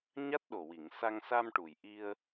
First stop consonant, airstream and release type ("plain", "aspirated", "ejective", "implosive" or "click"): plain